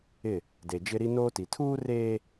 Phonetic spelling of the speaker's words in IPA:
ɪ˦˨ | de˨d͡ʒɪ˦ɾi˦ noː˦ti˨ tʰuː˦reː˦

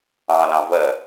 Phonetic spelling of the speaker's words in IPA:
ɑ̃lɑ̃ vɜ

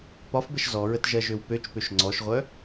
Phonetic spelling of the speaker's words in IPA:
pɒfbəʃ zɔɹət ʒɜʒøwpøt͡ʃpøʃ ŋ͡ǀɔʃʁʷœ

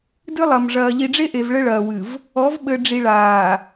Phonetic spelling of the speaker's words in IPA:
dɨ˦lˠɐ˨mʐɐː˨ ʎi˨ɖ͡ʐe˦ʔe˨v ɭɘ˦ɭɐː˨wɨ˨v | ɔ˨˦vɓɘ˨ɖ͡ʐi˨ ɭaː˨

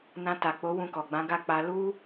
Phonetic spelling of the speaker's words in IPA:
nã˧ta˨k͡po˨˦ wũ˧kɔ˨ɡ͡bã˨˦ɡa˦˨ k͡pa˧lu˦

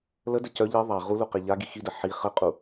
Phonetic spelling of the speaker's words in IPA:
lədə cœ ʎe ðˤa ʁulu qeʎaɡi xidə ħi χəqʼu

